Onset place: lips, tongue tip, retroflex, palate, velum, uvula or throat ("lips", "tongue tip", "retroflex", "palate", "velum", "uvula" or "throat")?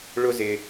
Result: retroflex